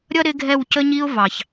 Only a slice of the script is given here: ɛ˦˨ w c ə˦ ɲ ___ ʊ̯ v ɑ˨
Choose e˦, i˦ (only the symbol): i˦